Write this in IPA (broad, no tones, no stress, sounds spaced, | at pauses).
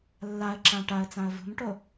lː a ə̯ ǁ ã ʈ a ə̯ t͡s ã ə̯ v ṳ m ʈ o